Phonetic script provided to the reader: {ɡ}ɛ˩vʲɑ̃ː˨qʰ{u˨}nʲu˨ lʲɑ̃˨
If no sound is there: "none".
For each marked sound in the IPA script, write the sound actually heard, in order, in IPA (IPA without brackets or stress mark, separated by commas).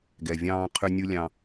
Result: ɡ, ʏ˨